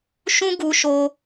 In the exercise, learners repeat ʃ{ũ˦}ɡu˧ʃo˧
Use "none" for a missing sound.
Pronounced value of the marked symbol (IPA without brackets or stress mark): ũ˦